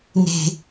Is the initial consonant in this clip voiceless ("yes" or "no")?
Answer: no